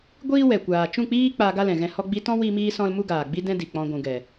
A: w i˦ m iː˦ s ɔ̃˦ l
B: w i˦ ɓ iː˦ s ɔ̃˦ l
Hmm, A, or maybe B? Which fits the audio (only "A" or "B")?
A